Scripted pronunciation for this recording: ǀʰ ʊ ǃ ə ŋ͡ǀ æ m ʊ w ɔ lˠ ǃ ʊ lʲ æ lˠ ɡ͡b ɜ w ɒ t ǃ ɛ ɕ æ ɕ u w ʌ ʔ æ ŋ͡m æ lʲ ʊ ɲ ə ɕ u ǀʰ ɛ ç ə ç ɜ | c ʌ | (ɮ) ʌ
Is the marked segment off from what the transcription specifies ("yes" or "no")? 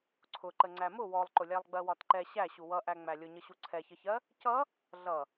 no